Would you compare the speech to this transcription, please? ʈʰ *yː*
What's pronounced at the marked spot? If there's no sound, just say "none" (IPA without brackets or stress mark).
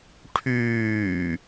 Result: yː